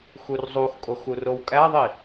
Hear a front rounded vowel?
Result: no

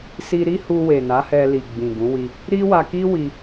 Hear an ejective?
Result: no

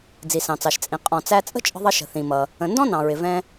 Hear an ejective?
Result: yes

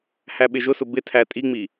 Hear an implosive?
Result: yes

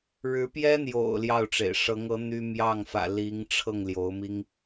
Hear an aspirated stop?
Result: yes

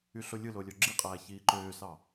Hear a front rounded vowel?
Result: yes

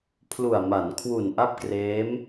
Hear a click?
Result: no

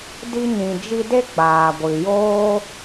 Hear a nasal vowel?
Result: yes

